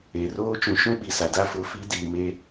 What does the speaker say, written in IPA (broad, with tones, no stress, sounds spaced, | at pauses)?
e˨ r oː˦ t͡ʃ ũ˨ ʃ ũ˦ ɓ i˨ s a˨ d a˦ f ʊ˨˦ f i˨˦ d iː˨ m e˦